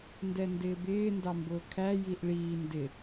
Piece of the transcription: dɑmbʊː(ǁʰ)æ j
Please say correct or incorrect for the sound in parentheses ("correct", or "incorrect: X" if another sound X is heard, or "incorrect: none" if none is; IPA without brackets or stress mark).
incorrect: kʰ